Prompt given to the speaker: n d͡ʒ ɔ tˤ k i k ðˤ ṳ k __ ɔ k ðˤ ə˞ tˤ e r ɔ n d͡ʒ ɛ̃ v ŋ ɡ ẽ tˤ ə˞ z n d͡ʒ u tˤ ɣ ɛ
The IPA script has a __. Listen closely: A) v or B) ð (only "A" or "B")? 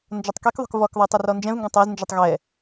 A